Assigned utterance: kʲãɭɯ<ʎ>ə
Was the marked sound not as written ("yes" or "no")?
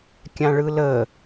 yes